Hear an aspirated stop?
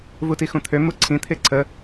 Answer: yes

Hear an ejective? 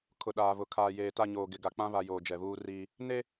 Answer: no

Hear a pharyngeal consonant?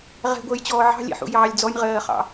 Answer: yes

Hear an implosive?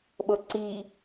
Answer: yes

